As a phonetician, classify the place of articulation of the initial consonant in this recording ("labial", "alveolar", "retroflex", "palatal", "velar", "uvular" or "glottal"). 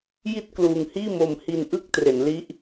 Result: palatal